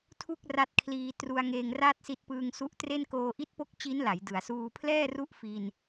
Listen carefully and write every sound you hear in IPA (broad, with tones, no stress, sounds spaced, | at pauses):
tʰ u˥˩ k̚ r a˦˥ t̚ kʰ l iː˧ t r u˧ a̯ ŋ eː˧ ŋ r a˥˩ t̚ s i˦˥ t̚ p ɯː˧ ŋ s u˦˥ ʔ t r e˥˩ n k oː˧ ʔ i˦˥ t̚ p o˦˥ k̚ t͡ɕ i˦˥ n l a˩˦ j d ɯ˩˦ a̯ s uː˧ pʰ l ɛː˥˩ r u˦˥ ʔ f i˧ n